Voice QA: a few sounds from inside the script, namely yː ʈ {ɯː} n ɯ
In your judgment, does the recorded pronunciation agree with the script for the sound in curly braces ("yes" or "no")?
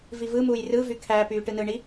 no